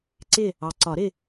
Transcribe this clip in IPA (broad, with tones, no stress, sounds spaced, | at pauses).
ǀ ɪ˦˨ | ɑ˨ ǀ ɒ˨˩˦ ɾ ɪ˦˨